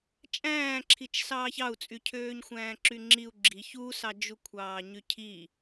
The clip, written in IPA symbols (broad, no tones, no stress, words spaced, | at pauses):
t͡ʃʼæ̃ːǁʰit͡ʃ sɑːçɑu̯t͡sʼy cʰøːɲxʷæ̃ːǁyŋ͡ǁiu̯ ɡ͡ǁi çusɑd͡ʒukʷʰɑː ɲycʰi